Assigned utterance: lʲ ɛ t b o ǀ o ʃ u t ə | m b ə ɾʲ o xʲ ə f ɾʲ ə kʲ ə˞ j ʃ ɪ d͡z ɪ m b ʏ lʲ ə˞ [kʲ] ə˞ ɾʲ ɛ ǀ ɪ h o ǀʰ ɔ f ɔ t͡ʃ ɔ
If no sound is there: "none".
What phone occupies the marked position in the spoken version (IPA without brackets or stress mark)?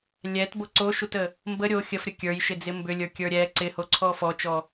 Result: kʲ